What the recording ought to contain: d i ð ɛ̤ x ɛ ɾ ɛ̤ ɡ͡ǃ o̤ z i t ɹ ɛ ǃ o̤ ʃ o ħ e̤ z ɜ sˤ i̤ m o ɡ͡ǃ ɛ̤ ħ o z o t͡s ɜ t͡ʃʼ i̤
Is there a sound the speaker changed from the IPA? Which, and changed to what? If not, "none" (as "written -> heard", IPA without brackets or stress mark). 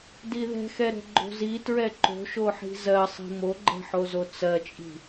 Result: e̤ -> i̤